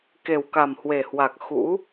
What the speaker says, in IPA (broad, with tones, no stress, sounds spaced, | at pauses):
k e˨˩ w k a˨˩ m h w e˨˩ h w a˨˩ k̚ x ṵ˧˥